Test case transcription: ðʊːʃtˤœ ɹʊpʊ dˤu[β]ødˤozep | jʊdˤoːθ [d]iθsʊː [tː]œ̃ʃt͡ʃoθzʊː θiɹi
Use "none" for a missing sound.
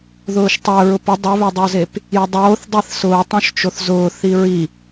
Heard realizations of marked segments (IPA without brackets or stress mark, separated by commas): β, dˤ, tˤ